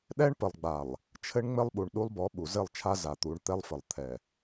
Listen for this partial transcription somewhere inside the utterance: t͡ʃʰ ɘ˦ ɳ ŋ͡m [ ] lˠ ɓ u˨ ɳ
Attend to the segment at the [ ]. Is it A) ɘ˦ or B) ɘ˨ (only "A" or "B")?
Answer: A